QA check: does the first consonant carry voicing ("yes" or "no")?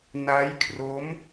yes